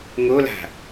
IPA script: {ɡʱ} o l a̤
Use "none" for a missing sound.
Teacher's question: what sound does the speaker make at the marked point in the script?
ŋ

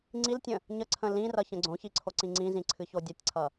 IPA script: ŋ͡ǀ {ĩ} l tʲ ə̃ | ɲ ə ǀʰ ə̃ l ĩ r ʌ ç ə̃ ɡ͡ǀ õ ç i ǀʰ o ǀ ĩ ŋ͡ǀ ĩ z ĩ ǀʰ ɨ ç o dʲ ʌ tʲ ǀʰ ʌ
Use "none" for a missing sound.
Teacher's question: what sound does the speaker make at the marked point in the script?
i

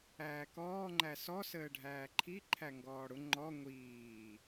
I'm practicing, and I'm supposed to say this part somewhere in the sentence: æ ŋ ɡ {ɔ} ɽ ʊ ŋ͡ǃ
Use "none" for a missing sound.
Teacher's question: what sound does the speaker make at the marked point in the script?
ɔː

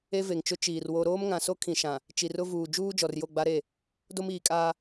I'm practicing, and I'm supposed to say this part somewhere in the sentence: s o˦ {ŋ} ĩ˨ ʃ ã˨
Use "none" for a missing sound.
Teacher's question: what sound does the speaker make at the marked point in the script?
kʰ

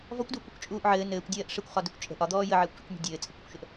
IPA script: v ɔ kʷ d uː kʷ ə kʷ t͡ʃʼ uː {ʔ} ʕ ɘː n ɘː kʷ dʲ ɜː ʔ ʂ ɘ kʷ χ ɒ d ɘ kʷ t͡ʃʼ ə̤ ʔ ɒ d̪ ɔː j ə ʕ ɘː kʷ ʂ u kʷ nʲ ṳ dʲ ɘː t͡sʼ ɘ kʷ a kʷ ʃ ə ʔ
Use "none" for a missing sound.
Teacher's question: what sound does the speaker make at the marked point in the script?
ʔ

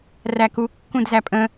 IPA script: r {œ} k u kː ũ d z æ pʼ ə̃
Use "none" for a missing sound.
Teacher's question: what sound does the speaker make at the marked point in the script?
æ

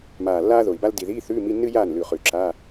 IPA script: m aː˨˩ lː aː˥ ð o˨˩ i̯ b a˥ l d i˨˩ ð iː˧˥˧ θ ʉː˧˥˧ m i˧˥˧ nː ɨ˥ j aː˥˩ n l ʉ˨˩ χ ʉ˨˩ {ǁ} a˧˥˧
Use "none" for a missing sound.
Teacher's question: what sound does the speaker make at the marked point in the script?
ǁ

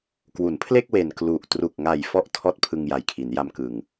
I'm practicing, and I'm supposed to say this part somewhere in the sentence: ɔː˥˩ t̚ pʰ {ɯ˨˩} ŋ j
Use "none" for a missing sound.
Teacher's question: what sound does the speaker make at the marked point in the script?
ɯ˧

